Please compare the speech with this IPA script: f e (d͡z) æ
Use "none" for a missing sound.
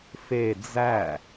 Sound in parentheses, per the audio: d͡z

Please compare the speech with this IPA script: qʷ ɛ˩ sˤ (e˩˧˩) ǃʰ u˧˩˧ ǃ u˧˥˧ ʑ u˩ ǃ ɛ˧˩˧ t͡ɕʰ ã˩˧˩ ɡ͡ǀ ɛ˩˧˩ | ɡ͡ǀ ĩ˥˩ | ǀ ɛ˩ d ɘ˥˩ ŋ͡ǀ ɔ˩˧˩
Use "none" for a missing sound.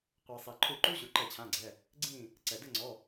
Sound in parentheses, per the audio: e˩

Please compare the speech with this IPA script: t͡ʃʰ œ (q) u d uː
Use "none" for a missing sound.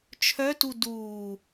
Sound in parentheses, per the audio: t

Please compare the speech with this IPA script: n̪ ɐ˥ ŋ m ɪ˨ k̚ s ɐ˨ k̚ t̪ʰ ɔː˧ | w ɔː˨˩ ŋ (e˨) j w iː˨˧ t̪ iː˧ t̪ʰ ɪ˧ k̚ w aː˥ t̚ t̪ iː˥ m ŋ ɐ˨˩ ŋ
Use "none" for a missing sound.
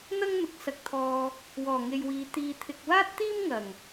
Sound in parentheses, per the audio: e˨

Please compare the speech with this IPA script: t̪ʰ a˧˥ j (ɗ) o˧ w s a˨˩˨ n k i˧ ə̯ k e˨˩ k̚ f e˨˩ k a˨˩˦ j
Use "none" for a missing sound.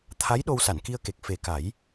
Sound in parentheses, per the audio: ɗ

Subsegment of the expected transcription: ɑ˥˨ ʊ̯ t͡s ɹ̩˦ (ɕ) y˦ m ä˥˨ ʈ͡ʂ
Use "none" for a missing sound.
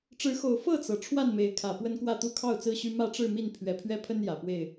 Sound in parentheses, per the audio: ɕ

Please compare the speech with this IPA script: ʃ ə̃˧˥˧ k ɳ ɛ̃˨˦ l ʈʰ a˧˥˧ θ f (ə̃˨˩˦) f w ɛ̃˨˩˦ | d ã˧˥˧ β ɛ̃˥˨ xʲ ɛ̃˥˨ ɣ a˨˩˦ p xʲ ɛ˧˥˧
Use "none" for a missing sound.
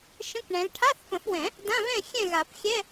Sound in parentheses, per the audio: ə̃˨˩˦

